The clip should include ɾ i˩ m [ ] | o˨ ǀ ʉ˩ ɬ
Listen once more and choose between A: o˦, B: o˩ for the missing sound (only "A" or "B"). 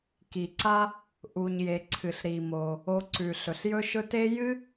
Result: B